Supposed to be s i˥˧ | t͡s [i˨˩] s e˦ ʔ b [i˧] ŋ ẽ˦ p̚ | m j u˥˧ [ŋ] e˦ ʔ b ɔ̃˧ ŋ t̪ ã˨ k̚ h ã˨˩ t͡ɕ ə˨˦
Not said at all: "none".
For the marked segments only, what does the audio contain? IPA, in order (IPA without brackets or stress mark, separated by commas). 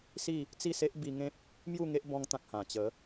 i˥˧, i˧, ŋ